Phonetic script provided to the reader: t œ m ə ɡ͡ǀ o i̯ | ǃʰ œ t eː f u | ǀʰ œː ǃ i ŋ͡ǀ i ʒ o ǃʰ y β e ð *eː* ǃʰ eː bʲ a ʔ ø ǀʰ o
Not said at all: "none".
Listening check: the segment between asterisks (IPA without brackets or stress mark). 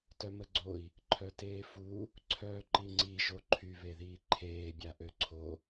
iː